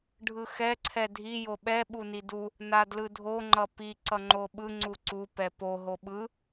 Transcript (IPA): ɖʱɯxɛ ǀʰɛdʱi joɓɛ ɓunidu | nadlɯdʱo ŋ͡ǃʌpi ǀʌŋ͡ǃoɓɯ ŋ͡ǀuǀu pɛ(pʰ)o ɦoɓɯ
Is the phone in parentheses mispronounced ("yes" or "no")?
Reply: yes